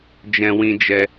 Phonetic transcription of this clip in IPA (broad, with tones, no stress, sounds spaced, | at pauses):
d͡ʒ ɛ̃˧ w ĩ˧ d͡ʒ ɛ˧